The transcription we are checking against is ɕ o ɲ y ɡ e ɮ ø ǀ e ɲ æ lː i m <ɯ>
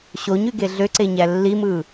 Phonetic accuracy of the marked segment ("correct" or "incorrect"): correct